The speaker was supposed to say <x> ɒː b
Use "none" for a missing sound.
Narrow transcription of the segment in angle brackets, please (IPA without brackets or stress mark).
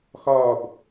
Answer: x